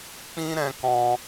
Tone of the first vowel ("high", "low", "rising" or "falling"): high